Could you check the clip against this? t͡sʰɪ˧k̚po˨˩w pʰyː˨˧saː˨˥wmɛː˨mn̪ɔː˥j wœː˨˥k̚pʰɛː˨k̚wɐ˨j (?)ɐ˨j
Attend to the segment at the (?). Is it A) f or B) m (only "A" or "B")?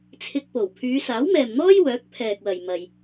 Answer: B